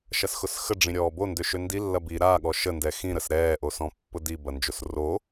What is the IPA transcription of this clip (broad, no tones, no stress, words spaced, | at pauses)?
ʃɐsxʊsxə ɖ͡ʐĩɾʲɔːbo ndøʃøndi lːɐbi ɾa ɠɔʃə ndɛxĩ ɾəsɾɛː ʔosɔ̃pːʊdi bɐnd͡ʒosro